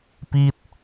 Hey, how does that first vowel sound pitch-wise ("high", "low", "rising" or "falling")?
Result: falling